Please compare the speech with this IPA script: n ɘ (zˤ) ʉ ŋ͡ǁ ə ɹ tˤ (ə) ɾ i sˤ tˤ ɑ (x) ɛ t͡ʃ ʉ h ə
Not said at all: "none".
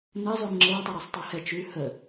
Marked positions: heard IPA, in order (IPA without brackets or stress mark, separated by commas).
zˤ, ə, h